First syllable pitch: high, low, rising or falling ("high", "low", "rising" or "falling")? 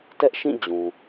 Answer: high